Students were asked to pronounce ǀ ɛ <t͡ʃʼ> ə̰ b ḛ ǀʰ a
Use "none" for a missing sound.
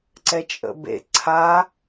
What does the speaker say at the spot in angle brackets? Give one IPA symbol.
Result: t͡ʃʼ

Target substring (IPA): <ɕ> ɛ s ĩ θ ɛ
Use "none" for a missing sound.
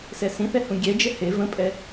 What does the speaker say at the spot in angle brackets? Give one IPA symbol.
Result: s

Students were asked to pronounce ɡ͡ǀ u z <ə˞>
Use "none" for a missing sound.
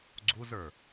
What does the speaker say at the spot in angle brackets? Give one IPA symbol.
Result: ə˞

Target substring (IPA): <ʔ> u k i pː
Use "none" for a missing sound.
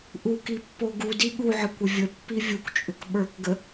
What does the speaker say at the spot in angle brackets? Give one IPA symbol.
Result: ʔ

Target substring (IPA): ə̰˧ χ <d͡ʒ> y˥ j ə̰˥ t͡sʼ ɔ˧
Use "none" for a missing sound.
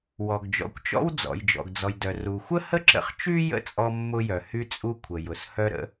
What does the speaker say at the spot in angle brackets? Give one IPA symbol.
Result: t͡ʃ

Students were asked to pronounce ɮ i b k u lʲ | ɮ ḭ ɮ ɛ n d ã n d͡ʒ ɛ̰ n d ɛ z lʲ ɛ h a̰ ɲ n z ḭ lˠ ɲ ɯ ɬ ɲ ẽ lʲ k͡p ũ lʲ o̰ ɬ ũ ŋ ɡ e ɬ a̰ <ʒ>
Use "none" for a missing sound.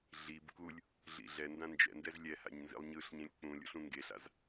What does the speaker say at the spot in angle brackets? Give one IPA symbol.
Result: z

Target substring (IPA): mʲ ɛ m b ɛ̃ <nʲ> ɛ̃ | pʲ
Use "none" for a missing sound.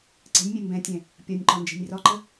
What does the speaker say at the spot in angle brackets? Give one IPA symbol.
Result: tʲ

